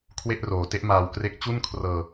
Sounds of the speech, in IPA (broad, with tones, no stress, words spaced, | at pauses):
kʰwe˥˩ʔroː˨˩te˥˩ʔmaː˧w kre˦˥k̚t͡ɕu˥˩nkʰrɤː˧